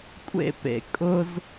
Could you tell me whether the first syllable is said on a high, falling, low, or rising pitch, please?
falling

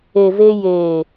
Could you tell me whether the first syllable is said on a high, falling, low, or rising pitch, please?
low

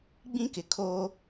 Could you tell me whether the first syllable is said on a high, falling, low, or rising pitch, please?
high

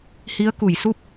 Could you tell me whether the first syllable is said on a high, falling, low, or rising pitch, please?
rising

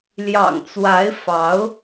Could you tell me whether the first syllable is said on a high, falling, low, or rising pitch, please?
low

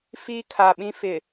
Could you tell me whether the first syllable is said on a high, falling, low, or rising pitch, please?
high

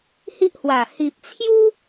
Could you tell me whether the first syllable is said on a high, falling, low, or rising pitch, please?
high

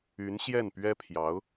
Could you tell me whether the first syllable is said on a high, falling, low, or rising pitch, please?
rising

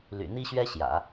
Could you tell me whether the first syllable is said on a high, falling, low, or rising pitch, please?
low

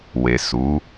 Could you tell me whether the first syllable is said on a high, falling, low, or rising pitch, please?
low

